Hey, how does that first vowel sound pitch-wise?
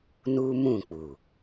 high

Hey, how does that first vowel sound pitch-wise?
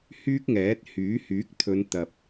high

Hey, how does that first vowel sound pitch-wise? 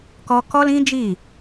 high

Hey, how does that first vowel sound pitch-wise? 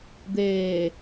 low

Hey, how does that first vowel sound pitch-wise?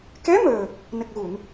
rising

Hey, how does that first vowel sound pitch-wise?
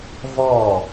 falling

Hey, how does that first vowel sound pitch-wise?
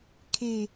low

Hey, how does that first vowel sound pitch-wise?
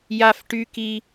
high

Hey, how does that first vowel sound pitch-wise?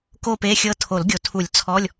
falling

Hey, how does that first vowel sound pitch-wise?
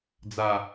low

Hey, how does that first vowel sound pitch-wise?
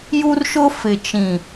high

